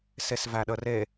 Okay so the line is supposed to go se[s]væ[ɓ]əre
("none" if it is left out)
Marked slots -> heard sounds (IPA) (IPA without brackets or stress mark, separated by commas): s, ɗ